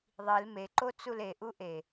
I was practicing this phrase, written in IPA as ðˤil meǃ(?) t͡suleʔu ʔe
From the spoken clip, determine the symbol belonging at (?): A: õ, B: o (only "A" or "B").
B